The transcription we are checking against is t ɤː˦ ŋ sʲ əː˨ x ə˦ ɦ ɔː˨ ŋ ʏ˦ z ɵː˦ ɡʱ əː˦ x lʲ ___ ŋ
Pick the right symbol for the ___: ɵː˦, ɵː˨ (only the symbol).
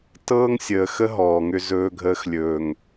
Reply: ɵː˨